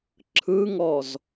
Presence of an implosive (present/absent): absent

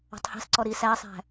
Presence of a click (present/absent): present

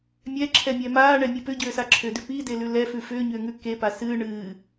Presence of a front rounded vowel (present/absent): present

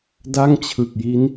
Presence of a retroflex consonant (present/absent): absent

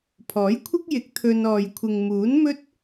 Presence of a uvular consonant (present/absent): absent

